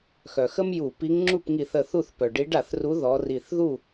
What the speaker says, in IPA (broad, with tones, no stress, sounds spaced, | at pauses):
x œ˩ x ə˥ m j u˧˩˧ p i˨˦ ŋ ŋ͡ǁ u˥˩ p ŋ i˧˩˧ θ ə˧˩ θ u˥˩ θ p œ˩ ɖ i˨˦ ɖ a˧˩˧ θ r u˨˦ ð ɔ˨˦ r i˧˩ θ ð u˥˩